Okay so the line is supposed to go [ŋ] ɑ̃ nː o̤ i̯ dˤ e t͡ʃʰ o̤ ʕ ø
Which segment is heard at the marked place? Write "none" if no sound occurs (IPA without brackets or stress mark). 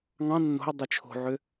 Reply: ŋ